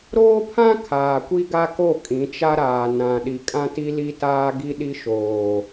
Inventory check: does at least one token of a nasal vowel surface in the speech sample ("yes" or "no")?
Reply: yes